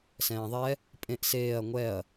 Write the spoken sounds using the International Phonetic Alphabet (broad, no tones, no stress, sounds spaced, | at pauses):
s ɛ̃ː ðˤ ɛ | pʼ ẽ ʔ s eː ɐ̯ ŋʷ ɛ ɐ̯